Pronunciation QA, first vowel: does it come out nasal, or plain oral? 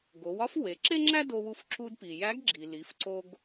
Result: oral